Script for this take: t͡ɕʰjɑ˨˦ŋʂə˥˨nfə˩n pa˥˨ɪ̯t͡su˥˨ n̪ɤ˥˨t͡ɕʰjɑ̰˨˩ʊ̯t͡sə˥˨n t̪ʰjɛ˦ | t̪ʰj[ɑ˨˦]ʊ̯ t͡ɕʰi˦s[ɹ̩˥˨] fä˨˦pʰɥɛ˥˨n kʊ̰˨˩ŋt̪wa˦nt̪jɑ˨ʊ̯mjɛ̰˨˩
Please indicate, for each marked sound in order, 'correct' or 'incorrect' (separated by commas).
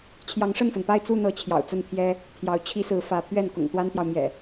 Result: correct, incorrect